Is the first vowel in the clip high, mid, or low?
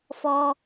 mid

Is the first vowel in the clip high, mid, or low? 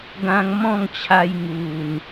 low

